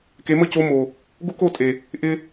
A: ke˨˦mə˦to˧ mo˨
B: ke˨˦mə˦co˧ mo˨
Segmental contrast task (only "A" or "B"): B